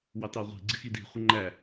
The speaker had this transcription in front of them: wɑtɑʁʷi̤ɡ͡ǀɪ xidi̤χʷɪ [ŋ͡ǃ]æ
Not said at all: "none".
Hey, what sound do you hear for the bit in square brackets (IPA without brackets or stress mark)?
ŋ͡ǃ